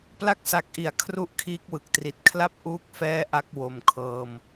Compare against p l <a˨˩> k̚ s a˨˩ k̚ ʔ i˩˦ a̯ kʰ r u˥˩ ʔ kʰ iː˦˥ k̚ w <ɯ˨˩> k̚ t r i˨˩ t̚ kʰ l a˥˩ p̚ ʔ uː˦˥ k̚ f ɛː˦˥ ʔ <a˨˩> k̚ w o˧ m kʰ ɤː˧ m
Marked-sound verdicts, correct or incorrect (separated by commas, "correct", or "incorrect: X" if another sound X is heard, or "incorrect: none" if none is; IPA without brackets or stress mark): incorrect: a˥˩, correct, incorrect: a˦˥